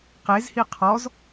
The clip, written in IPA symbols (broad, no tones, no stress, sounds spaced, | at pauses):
q e z h i qʰ ɔ z